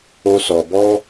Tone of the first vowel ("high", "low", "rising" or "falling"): low